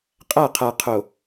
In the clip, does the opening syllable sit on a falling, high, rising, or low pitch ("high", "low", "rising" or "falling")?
falling